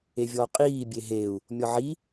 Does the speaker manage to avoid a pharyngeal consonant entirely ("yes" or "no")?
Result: no